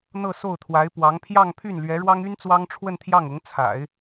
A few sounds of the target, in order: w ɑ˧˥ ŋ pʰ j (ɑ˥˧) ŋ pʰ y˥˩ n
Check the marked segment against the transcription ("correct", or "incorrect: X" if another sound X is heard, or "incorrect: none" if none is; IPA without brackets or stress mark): correct